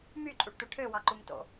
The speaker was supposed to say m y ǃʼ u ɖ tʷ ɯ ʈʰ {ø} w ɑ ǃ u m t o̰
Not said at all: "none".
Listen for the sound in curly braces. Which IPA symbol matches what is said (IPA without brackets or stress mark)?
ø